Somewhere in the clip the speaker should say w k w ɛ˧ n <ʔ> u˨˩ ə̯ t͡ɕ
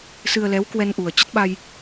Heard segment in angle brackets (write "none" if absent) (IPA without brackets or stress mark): ʔ